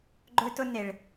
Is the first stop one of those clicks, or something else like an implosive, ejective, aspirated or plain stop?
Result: click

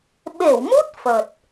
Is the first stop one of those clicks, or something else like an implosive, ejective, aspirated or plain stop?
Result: implosive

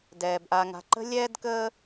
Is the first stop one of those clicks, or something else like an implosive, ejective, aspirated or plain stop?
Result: plain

